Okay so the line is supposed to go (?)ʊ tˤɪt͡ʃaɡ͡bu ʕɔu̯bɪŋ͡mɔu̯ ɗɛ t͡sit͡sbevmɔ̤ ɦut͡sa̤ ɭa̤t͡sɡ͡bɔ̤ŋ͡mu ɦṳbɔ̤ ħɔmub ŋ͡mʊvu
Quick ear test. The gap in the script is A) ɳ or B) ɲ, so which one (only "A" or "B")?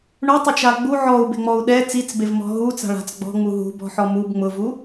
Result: A